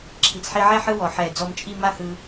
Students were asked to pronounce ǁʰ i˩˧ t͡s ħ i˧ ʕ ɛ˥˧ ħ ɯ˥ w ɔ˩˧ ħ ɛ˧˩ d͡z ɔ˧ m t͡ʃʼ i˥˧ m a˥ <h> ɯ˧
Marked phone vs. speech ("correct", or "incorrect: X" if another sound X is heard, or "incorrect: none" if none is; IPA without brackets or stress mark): correct